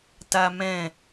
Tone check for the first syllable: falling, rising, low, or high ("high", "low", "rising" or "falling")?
high